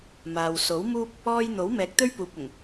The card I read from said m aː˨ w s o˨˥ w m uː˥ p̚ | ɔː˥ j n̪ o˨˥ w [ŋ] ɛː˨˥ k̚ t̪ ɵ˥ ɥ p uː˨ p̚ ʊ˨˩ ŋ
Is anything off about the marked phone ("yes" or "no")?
yes